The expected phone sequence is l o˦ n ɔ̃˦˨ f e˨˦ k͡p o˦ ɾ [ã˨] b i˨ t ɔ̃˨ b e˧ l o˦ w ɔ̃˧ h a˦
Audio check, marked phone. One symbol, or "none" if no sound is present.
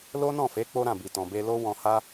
ã˦˨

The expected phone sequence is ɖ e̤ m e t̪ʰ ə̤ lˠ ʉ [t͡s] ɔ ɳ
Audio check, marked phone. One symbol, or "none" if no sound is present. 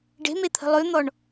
n̪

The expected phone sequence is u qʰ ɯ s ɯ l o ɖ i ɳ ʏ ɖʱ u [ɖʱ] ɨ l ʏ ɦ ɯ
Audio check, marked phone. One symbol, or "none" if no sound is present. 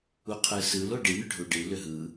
ɖ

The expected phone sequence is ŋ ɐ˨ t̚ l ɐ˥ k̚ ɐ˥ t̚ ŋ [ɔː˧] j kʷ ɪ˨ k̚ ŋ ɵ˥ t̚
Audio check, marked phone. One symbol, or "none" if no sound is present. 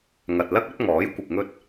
ɔː˨˥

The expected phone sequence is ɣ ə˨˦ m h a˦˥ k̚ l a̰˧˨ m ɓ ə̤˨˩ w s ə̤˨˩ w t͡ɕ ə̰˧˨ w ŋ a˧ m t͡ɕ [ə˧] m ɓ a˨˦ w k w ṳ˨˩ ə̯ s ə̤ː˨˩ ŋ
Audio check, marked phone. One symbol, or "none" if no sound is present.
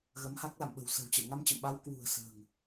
ə̰˧˨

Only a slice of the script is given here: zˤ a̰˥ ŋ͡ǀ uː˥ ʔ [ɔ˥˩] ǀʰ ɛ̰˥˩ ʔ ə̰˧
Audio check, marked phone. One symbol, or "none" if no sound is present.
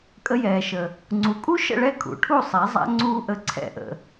ə˥˩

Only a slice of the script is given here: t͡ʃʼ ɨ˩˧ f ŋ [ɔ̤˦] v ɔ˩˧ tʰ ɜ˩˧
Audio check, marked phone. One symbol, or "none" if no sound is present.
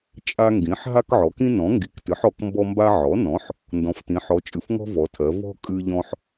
ɔ̤˦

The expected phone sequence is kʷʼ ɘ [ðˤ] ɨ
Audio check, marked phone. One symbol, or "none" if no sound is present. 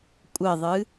ðˤ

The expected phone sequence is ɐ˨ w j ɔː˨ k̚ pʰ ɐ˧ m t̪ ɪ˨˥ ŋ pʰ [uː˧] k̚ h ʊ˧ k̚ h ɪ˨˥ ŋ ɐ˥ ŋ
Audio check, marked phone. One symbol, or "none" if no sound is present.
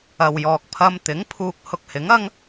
uː˧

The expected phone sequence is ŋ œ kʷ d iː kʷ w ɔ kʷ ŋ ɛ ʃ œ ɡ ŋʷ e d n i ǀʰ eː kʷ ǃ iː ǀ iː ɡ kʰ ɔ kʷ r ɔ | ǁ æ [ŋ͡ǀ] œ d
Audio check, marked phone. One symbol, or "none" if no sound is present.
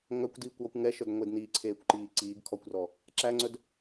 ŋ͡ǀ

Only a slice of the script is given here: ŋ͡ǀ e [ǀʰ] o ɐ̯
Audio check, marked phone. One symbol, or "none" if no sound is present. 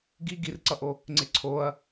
ǀʰ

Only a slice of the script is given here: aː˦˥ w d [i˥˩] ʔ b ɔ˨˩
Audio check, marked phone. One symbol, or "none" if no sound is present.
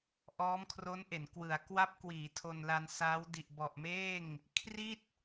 i˨˩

